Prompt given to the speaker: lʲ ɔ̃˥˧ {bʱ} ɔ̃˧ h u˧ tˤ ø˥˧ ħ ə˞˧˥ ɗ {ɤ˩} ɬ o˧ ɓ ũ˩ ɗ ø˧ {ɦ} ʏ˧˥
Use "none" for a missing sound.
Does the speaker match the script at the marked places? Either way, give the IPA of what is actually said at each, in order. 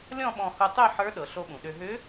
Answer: ɓ, ɤ˩, ɦ

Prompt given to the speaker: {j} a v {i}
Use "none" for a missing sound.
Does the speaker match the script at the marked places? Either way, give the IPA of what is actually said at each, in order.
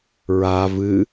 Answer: ɹ, ɨ

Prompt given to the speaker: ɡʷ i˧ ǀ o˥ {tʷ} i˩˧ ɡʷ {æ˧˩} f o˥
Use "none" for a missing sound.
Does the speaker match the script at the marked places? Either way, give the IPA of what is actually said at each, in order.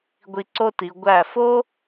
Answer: t, æ˧˩

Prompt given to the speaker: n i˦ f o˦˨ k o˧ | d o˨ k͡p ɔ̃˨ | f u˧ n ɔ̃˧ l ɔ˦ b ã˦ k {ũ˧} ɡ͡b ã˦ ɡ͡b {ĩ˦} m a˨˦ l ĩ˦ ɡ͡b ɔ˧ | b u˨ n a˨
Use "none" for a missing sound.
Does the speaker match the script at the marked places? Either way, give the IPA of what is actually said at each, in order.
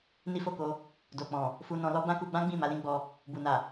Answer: u˧, ĩ˦˨

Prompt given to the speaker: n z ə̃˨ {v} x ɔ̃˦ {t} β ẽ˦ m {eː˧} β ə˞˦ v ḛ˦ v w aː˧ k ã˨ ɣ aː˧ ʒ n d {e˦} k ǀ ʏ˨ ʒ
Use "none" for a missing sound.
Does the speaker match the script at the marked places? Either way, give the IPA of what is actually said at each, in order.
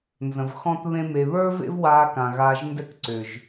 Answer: v, t, e˧, ɛ˦

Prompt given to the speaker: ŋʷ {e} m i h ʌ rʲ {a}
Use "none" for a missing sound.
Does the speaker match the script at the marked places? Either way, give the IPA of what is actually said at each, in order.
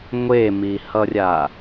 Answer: e, a

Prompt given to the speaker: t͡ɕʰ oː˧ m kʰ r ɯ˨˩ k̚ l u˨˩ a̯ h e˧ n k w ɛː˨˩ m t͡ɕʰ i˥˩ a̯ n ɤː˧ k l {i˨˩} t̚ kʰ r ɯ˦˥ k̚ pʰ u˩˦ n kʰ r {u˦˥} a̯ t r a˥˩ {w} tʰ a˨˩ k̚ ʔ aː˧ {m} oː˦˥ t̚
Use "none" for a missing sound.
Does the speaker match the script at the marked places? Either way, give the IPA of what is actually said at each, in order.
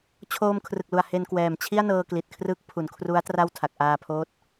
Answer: i˨˩, u˦˥, w, pʰ

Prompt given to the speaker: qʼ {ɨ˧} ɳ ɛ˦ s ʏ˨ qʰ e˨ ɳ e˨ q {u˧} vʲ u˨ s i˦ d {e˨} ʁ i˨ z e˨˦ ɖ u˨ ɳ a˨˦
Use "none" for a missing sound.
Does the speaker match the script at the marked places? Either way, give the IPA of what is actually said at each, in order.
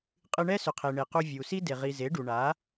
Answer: ɨ˧, u˧, e˨

